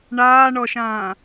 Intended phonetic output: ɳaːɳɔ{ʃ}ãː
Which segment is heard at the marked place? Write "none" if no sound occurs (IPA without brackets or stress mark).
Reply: ʃ